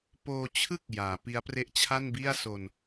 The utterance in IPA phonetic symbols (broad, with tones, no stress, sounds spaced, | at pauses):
p oː˧ t͡ɕʰ ɯ˥˩ k̚ j aː˩˦ p i˦˥ a̯ p r e˥˩ ʔ t͡ɕʰ a˥˩ n b i˥˩ a̯ s o˧ n